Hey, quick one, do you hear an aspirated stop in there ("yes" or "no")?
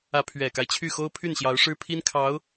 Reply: yes